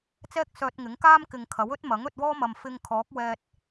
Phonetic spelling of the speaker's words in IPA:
t͡s ɛː˥ k̚ s œː˧ t̚ ŋ ɪ˨˥ ŋ k aː˥ m k ɪ˨ ŋ kʰ ɐ˨˥ w ɵ˥ t̚ m ɐ˨˥ ŋ ɵ˧ t̚ w ɔː˥ m ɐ˨ m f ɪ˧ ŋ kʰ ɔː˨˥ k̚ w ɛː˧ t̚

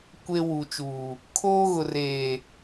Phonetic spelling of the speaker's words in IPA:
kʷ e˦ w u˨ t͡ʃ uː˨ | kʰ oː˦ ɣ ʊ˨ r eː˨

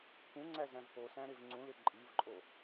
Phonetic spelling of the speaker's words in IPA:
p ũ ŋ͡ǀ æ z æ̃ v p o s æ̃ ɾ e v ŋ͡ǀ ũ l e ǃʼ i v ǃʼ o

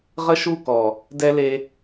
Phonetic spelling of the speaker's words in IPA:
ʁ ə˦ ʃ u˦˨ k ɔ˨ | d ɛ˦ l e˦

